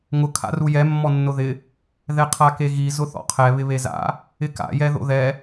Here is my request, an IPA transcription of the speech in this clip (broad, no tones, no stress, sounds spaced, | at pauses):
ŋ ʊ kʰ a̰ r u j ɛ mː ɔ nː ʊ ð ɪ | ð ɛ qʰ a k e ɣ i z ʊ θ ɔ̰ qʰ ɛ β ɪ β e z a̰ | ɪ k a̰ j ɛ ð o̰ ð ɛ